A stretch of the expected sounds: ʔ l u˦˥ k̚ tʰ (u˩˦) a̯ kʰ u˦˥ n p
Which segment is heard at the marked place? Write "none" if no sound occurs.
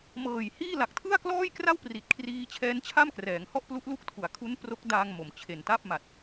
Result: u˩˦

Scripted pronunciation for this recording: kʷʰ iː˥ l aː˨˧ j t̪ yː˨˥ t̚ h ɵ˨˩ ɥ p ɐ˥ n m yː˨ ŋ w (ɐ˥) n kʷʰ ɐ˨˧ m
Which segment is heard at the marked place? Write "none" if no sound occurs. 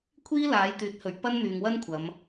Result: ɐ˥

